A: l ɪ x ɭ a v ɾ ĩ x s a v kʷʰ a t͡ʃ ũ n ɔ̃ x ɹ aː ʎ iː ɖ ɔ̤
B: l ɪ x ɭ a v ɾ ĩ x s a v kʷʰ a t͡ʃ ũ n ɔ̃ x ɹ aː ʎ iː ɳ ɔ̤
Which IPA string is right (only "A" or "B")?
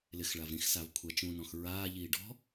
A